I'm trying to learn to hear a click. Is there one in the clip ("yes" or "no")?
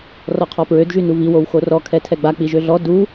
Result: no